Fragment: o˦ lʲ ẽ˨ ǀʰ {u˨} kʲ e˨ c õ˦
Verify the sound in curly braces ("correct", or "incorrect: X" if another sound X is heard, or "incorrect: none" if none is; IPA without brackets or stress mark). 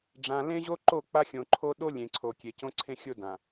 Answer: incorrect: o˨